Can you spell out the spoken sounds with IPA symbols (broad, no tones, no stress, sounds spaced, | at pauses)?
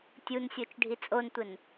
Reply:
tʲ u n sʲ o t͡ʃ ɖʱ i t͡sʼ o n tʷ ɘ n